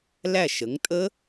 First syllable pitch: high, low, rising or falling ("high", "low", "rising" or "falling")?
falling